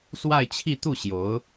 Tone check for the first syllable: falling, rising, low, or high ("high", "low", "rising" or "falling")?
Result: falling